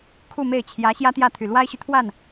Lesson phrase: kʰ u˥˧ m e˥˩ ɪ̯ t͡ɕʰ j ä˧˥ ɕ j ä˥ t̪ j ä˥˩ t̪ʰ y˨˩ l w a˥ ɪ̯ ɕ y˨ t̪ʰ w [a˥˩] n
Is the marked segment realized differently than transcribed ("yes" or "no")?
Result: no